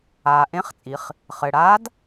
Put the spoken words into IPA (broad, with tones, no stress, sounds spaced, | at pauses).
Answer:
aː˩ ʔ ẽ˧˥ χ t͡sʼ i˩˧ χ | χ ɘ˩ ɽ aː˧˥ d